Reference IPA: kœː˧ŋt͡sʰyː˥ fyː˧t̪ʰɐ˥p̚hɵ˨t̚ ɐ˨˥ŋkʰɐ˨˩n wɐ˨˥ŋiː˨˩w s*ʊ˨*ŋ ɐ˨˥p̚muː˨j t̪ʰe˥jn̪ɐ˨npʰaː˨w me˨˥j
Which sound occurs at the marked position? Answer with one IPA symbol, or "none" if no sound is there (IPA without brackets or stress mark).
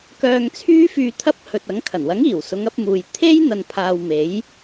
ʊ˨˧